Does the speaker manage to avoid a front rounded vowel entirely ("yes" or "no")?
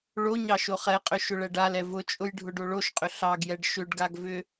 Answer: no